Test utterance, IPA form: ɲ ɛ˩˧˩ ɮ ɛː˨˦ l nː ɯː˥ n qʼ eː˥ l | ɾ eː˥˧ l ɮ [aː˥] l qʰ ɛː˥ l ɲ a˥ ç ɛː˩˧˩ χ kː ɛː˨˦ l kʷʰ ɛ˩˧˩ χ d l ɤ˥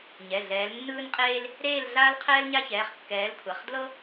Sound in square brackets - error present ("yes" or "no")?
no